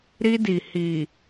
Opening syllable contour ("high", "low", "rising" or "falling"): high